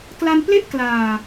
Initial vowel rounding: unrounded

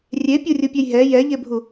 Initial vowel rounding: unrounded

